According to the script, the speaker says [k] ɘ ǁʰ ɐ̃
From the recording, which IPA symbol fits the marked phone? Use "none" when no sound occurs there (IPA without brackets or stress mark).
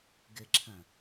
ɡ